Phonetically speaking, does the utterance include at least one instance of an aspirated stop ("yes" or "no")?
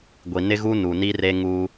no